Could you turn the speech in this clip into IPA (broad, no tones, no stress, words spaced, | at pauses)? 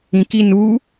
ĩki nu